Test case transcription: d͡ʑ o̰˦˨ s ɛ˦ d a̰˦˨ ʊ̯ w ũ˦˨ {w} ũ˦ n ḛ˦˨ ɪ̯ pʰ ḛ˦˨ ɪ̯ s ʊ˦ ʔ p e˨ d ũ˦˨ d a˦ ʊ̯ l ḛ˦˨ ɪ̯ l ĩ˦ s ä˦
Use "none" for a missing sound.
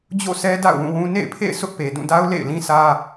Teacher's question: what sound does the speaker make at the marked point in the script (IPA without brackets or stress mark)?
w